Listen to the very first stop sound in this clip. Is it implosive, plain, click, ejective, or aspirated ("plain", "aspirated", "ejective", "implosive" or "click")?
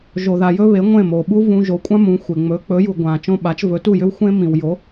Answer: implosive